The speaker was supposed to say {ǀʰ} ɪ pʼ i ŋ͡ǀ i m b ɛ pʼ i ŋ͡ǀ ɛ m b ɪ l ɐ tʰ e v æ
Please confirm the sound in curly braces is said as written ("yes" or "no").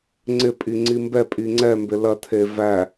no